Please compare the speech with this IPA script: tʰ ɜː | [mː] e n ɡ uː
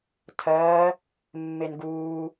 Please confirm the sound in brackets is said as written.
yes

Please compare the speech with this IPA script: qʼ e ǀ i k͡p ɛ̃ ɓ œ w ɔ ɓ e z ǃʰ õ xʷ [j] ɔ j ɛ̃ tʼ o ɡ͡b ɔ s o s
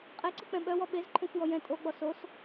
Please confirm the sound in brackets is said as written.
yes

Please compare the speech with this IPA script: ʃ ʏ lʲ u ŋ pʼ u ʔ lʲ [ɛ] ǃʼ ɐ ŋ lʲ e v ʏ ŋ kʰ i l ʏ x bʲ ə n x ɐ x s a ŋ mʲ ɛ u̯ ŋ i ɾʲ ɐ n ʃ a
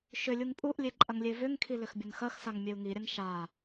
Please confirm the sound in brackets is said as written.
no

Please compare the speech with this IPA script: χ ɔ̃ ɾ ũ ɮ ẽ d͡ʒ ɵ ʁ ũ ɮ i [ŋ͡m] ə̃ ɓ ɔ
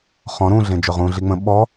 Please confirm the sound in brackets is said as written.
yes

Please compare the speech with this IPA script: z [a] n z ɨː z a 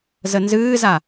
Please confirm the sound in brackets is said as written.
no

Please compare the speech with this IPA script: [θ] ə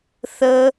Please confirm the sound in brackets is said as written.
yes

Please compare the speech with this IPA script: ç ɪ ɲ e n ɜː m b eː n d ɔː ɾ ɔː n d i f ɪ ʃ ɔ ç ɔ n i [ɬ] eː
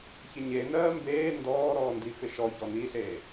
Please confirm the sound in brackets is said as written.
yes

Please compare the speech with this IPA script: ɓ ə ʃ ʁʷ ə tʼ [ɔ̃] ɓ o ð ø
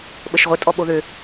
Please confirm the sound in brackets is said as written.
no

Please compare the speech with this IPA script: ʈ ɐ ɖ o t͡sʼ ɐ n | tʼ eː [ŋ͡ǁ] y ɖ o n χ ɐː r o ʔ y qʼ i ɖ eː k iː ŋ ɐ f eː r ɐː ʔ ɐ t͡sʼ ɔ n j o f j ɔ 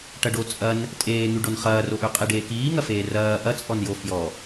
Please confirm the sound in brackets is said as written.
no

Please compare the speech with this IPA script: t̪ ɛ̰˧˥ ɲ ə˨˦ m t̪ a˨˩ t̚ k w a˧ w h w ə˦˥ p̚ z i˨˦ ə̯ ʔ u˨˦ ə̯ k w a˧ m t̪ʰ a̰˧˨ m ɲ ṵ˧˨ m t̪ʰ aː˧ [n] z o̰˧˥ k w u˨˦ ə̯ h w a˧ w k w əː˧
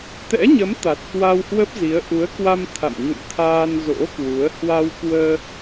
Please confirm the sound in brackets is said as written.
yes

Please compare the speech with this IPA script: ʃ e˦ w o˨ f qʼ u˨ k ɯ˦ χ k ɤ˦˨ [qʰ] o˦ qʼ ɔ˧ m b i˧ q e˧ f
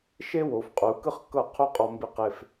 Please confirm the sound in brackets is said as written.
yes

